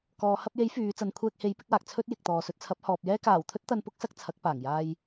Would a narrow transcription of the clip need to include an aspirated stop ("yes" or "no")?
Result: yes